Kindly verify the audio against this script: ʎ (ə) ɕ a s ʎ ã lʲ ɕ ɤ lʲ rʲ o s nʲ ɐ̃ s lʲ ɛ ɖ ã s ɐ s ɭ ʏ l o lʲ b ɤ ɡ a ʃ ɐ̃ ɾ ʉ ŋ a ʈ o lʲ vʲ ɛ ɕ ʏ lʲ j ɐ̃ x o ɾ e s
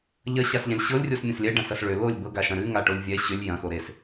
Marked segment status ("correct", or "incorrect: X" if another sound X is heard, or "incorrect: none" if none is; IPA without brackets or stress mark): incorrect: ɐ